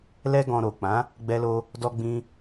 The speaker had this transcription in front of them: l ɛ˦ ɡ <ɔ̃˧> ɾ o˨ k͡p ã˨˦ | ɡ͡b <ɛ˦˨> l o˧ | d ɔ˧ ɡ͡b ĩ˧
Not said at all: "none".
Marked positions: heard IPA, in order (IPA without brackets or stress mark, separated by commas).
ɔ̃˧, ɛ˧